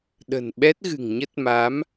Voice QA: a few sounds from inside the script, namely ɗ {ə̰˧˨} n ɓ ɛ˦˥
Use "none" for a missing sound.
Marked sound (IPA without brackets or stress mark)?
ə̤˨˩